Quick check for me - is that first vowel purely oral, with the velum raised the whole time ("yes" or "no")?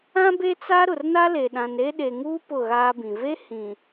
no